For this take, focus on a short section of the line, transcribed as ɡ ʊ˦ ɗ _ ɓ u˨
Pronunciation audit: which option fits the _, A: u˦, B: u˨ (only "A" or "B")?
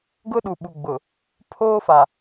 B